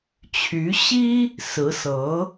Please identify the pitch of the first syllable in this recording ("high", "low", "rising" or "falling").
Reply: rising